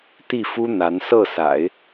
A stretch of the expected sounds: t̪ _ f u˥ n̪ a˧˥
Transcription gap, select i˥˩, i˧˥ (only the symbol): i˥˩